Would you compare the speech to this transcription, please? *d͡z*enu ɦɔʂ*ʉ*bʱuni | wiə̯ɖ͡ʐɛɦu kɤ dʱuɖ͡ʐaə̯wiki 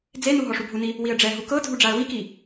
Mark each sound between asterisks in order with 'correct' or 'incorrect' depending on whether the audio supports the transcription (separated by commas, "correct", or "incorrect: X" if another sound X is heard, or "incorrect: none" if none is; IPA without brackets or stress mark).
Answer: correct, incorrect: u